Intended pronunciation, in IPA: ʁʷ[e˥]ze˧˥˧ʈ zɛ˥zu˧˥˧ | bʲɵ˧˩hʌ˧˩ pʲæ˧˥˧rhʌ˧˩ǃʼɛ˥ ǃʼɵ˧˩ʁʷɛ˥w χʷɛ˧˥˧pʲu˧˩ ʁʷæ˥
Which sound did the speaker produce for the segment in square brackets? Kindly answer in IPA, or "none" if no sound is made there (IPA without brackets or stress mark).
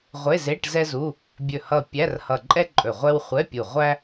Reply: e˧˥˧